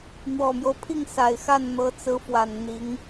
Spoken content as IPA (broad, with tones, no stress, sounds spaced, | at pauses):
n̪ w ɔ˨˩ m j o˦ ʊ̯ pʰ i˥˩ ŋ s a˨˩ ɪ̯ x a˥˩ n n̪ ɤ˧˥ t͡s ɹ̩˧˥ f w a˨˩ n n̪ i˧˥ ŋ